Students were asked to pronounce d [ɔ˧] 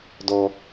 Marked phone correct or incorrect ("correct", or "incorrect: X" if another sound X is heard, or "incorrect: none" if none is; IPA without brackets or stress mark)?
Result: correct